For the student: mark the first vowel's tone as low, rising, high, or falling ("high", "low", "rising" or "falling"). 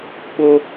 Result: high